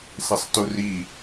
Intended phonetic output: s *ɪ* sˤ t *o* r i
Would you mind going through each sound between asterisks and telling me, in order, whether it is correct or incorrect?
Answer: correct, incorrect: u

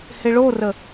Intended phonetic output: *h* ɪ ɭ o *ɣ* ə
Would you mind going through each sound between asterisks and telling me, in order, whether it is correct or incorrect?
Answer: correct, incorrect: r

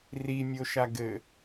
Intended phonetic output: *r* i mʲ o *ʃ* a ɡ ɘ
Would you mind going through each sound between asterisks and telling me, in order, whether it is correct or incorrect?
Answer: correct, correct

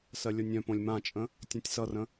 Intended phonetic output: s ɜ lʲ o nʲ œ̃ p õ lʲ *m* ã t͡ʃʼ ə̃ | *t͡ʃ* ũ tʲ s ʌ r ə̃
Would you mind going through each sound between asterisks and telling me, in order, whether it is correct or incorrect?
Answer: correct, incorrect: tʲ

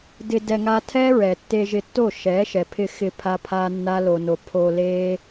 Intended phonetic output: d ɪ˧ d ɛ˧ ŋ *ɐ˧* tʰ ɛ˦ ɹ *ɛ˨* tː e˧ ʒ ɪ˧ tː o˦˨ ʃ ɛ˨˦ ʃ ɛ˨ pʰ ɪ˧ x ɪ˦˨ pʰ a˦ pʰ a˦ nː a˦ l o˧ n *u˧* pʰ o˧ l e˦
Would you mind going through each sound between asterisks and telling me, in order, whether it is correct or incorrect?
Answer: incorrect: a˧, correct, incorrect: o˧

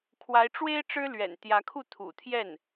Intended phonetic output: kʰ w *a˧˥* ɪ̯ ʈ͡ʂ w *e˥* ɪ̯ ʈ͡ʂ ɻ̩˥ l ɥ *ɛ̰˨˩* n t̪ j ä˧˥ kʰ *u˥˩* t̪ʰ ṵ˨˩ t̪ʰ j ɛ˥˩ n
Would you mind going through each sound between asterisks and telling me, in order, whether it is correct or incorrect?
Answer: correct, correct, correct, correct

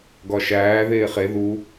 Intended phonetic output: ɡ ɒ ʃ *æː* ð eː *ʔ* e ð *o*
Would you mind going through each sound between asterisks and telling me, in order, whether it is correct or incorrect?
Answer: correct, incorrect: χ, incorrect: u

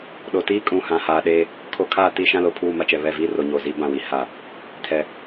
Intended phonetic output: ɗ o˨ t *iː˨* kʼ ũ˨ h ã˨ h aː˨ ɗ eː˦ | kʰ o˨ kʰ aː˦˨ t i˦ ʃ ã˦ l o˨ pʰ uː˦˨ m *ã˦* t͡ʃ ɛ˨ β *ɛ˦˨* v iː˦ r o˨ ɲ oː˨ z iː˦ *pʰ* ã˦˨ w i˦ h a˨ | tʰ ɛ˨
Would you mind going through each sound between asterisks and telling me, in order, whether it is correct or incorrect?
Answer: incorrect: iː˦, incorrect: a˦, correct, incorrect: b

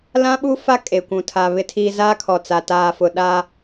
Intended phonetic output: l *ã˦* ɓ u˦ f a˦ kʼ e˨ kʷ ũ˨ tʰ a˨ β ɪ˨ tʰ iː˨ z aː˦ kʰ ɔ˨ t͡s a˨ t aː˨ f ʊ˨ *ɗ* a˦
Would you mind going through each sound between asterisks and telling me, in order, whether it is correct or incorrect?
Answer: correct, correct

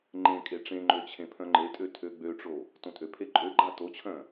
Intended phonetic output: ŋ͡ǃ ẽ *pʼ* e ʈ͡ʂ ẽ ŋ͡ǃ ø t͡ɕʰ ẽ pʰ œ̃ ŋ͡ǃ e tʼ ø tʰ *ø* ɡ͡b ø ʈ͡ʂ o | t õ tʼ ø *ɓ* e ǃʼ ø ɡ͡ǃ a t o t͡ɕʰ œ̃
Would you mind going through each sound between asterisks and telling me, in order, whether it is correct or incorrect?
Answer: incorrect: kʼ, correct, incorrect: pʰ

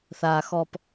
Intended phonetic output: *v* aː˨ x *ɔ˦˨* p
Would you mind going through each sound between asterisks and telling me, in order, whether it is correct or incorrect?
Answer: incorrect: θ, incorrect: ɔ˨

